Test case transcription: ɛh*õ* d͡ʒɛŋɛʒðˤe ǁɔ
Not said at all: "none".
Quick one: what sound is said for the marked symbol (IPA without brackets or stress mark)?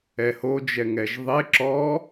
o